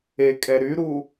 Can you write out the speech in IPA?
e kʼ ɛ ɾ y ɾ u

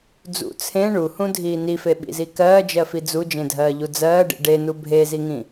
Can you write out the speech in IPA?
d͡z ṵ t͡sʰ ẽ ɳ u h ũ dʱ iː n i f e ɓ ḭ z i k ɜː d͡ʒ ɜ f i d͡z u d͡ʒ ẽ dʱ ɜː ʎ u d͡z ɜː ɖ ḭ ɖ e n u bʱ e z i ŋ ĩ

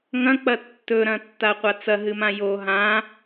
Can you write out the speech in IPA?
ŋ ɐ̃ k͡p ɐ tː ɵ ɾ ɐ̃ tː a qʷ a t͡s ɐ ɦ ɨ m ã j o ɦ ã

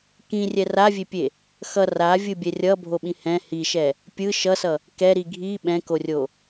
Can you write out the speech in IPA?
k ĩ rʲ ɛ r a vʲ e pʲ e | x ʌ r a vʲ ɯ bʲ ɛ rʲ ʌ bʱ o ɓ ĩ h ɛ̃ h i ʃ ɛ | pʲ ɯ ʃ ʌ s ʌ | k ɛ ɾ i ɡʱ i ɓ ɛ̃ k o rʲ o

